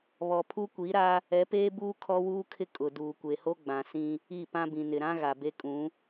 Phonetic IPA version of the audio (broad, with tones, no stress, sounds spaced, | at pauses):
β ɔ˨ pʰ u˦ kʷ i˨˦ ɾ a˦ | ɛ˨˦ p eː˦ b uː˦ kʰ ɔ˦ w uː˦ kʰ ɪ˦ kʼ ʊ˨ d uː˨ kʷ e˨ h o˦ ɡ͡b ã˨ s ĩ˦ | i˦˨ p ã˦ b ĩ˨ n ɪ˨ ɾ ã˦ ɣ a˨ b e˦ kʼ ũ˨˦